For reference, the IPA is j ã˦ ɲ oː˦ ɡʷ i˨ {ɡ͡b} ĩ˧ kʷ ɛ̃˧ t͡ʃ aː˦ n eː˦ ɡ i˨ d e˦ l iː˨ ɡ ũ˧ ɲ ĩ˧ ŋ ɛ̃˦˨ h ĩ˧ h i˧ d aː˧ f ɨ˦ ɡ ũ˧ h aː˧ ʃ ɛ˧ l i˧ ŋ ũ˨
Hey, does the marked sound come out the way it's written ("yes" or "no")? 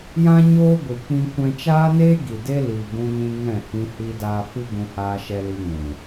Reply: no